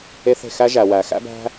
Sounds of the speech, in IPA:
e˦ θ e̤˩ x æ˦ ʒ æ˩ w æ˩ x æ̰˦ b æ̤˦

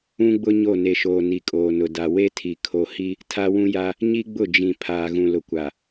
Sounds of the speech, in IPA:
ũ˦ ɡ͡b ʊ˦ ɲ o˦˨ n e˨ ʃ oː˨ n i˨ kʼ oː˨ n ʊ˨ d a˨ w e˦ tʰ i˨ kʰ o˨ h i˦ | tʰ a˦ w ũ˦ j a˦ | ɲ i˦ ɡ͡b ʊ˦˨ d͡ʒ ĩ˨ pʰ aː˨ ɣ ũ˨ l ʊ˨ kʷ a˨

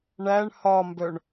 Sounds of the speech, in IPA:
ɳ æ ɳ h ɒ m b œ ɳ

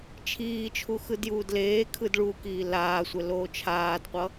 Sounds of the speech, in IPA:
t͡ʃʰ iː t͡ʃʰ u x ɯ d j uː d l eː kʰ ɯ d ɭ u k iː l aː sʷ ɛ l oː t͡ʃʰ aː d qʷ ʌ

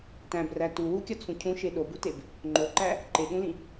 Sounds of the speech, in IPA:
t æ̃ b r æ t u w u kʲ ɒ t͡sʰ ũ cʰ ũ ʃ e ɗ o b u t e b | ŋ͡ǃ o ǃ æ | ǃ e ɠ ũ l ĩ

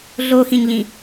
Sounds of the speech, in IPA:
ɮ o x ĩ ɲ ʎ ĩ

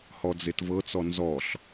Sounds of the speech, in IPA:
h ɔ d͡z e t v ɤ t͡s ɔ n z ɔ ɬ

